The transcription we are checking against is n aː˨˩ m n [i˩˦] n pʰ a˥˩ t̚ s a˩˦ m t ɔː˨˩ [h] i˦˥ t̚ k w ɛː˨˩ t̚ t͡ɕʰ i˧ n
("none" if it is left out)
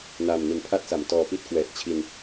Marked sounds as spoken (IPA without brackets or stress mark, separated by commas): i˩˦, p